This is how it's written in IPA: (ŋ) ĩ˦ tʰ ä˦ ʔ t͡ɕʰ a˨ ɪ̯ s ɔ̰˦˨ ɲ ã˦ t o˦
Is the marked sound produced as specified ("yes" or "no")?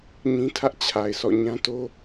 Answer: no